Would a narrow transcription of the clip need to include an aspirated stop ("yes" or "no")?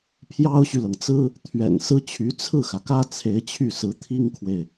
yes